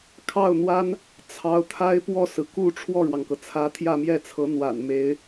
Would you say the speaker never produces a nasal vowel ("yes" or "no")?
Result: yes